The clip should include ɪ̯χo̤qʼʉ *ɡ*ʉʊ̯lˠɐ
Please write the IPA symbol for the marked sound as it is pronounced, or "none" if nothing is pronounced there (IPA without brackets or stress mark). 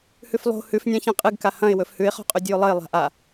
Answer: dʲ